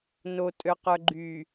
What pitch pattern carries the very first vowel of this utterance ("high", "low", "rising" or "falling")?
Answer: low